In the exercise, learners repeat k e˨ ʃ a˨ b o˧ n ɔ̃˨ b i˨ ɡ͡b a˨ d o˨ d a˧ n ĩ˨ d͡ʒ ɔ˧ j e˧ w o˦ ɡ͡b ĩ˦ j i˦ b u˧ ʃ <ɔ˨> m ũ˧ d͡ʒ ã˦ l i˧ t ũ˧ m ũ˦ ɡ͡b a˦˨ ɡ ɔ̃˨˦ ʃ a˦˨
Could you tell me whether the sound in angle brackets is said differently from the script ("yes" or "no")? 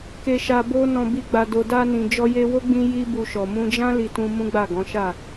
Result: no